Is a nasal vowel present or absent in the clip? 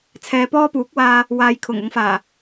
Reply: absent